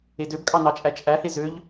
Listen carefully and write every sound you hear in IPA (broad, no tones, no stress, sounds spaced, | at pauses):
e d ø b kʼ ɑ n ɑ t͡ʃʼ æ t͡ʃʼ æ h e z ø ʎ